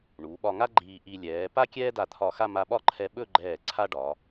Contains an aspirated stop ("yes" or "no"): yes